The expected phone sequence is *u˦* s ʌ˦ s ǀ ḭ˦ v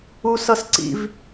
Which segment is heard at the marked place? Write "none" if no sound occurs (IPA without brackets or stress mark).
u˦